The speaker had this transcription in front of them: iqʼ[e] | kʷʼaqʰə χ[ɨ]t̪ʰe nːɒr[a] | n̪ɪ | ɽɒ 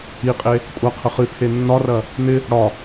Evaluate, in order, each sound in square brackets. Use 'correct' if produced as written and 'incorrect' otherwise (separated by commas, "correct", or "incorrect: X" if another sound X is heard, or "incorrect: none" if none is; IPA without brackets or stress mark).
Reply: correct, correct, incorrect: ɐ